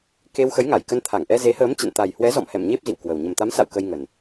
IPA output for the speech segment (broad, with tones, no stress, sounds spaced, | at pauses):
k e˧ w x ə˨˦ j ŋ a˧˩ j k ə˧ n t̪ʰ a˧˩ ŋ ʔ ɛ˧ z e˨˦ h əː˨˦ m t͡ɕ ə̰˧˨ n t̪ a˨˩ j h w ɛ˨˦ z ɔ̰˧˨ m h ɛ̰˧˨ m ɲ e˦˥ p̚ z ḭ˧˨ w k w ə˨˩ w ɲ ə˨˩ m t̪ a˨˦ m s a̰˧˨ w k ə˧ j ŋ ə˨˩ n